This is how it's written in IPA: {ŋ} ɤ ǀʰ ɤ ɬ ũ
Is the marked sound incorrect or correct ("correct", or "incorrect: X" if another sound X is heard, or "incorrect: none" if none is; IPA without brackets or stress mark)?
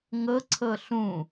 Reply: correct